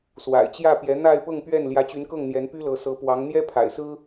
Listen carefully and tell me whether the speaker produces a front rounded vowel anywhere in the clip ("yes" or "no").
yes